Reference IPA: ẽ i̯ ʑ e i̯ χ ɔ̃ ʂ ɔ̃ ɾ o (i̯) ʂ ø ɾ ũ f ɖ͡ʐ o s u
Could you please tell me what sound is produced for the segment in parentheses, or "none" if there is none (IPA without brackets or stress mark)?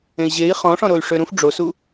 y̯